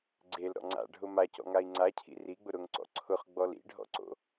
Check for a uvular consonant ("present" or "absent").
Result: present